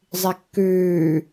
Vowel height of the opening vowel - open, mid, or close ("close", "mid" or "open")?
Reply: close